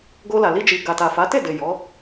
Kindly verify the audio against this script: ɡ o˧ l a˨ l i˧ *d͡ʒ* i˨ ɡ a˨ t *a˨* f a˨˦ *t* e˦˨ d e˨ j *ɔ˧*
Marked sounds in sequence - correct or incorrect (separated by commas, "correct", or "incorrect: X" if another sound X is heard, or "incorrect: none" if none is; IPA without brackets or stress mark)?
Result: correct, correct, correct, incorrect: ɔ˨˦